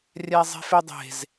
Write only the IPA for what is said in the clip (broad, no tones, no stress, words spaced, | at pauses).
rʲæzˤe̤fedˤe̤z